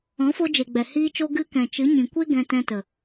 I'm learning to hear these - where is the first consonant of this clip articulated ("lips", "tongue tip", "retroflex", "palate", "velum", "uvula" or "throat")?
lips